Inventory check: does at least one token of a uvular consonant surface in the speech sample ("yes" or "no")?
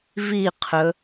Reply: yes